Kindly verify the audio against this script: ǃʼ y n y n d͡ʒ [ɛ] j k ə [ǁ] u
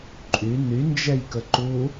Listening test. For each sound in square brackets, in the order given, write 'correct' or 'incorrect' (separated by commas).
correct, incorrect